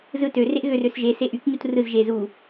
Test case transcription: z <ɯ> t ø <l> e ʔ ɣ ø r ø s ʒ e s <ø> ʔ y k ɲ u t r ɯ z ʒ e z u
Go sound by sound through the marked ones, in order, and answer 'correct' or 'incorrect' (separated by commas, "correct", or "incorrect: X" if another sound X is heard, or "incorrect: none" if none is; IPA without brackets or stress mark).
correct, incorrect: r, incorrect: e